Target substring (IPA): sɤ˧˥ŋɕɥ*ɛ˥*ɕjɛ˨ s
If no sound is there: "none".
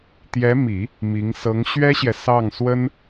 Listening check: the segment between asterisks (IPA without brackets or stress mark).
ɛ˥